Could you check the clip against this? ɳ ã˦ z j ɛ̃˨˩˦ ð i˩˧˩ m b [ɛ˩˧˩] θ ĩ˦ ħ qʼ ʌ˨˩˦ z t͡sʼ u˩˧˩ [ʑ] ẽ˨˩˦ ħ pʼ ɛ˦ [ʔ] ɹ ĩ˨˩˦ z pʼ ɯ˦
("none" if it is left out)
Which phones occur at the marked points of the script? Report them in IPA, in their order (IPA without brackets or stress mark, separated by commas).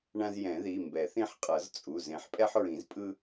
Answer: ɛ˨˩˦, z, ħ